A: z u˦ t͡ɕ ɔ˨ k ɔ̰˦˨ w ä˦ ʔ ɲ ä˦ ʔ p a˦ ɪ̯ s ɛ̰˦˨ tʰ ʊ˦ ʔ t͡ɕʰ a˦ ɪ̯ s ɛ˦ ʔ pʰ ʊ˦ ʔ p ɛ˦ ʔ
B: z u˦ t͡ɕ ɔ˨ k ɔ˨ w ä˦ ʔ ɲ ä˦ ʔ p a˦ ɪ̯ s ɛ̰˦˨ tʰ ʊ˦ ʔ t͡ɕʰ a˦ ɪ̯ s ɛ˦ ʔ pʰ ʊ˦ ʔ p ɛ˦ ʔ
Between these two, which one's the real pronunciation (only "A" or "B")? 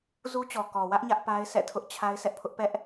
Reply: B